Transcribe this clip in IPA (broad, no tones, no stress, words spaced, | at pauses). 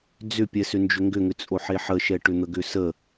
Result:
d͡zʏpʲɛsʏ nd͡ʒʏŋɡʏŋʏt͡sʼo ħeħəʃɛ ʈʏn̪əɡʏsə